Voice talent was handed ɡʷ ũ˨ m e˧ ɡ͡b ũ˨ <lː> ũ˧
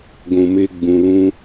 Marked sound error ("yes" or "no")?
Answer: yes